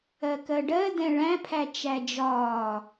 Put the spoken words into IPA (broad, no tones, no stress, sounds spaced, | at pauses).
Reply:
ɜ k ɜ ɖ ɜ d ɛ̃ ɭ æ̃ pʰ æ t͡ʃ æ d͡ʒ ɒː